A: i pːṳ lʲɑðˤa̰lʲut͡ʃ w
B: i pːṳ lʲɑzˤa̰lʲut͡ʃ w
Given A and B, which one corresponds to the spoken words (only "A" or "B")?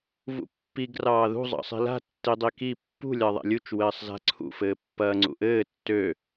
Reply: A